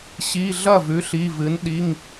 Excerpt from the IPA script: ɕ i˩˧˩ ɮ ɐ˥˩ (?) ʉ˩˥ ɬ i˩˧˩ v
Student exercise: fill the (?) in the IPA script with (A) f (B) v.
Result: B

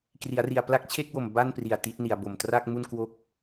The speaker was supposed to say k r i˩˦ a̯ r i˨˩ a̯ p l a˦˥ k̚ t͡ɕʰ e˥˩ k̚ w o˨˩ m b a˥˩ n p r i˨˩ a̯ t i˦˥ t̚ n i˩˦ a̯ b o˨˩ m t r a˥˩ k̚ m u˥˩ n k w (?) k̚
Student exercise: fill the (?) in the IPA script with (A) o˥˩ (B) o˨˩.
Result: A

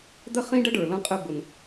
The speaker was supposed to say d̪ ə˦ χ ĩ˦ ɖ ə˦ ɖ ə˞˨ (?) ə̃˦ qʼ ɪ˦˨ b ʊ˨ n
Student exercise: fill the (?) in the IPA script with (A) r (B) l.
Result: B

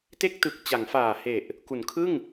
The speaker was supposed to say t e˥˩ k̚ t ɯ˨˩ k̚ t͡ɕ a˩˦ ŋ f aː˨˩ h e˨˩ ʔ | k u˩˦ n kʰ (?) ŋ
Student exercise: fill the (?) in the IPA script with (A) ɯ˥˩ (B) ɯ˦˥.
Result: A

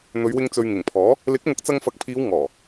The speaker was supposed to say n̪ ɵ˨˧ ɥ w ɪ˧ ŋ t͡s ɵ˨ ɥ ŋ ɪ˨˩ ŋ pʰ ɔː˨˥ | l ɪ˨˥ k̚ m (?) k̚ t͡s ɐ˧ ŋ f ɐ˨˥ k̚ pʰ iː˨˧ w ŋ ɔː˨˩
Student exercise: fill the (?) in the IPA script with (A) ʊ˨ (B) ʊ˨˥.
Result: B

